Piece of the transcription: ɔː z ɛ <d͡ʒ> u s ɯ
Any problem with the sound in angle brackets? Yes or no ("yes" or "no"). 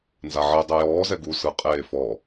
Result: yes